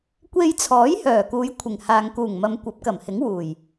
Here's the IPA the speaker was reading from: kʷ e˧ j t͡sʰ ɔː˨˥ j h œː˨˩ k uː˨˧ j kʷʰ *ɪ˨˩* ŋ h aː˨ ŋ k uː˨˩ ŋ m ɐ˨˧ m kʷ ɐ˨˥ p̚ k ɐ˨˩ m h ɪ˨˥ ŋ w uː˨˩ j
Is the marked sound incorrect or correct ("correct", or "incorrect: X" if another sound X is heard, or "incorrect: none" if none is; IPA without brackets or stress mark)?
correct